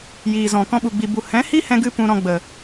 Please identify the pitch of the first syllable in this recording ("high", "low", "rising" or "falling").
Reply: low